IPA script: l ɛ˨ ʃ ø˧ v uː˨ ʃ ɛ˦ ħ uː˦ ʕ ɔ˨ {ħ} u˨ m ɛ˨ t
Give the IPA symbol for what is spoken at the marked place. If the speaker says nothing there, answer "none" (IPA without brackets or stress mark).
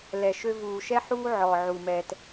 ʕ